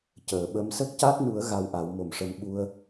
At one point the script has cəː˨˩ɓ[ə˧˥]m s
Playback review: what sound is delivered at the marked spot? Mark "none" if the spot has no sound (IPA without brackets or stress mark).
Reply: ə˧˥